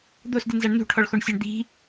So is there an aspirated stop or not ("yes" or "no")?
yes